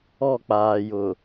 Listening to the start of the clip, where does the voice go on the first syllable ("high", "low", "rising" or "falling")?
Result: falling